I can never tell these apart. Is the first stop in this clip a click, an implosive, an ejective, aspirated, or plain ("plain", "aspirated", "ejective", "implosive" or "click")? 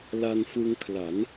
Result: aspirated